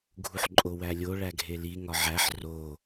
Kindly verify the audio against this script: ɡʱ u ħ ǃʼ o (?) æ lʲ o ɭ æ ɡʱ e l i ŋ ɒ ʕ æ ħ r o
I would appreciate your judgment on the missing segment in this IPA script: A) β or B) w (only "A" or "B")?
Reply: B